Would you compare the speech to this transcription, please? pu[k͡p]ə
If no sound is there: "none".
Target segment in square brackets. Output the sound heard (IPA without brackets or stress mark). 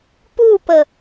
p